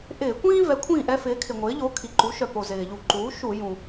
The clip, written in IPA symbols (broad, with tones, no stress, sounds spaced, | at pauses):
ʔ ɪː˧˩˧ kʷ ĩː˥ v ɛ˩˥ kʷʰ ĩː˥˩ ʔ ɛ˥ f ɪː˩˥ kʰ ɪ˩ ŋʷ ɪː˩˥ ʎ o˩˥ kʰ i˩ ǃ u˩˥ ʃ œ˩ p o˩ z ɪː˩ ʎ u˧˩˧ ǃ uː˩˥ ʃ u˧˩˧ j ũ˩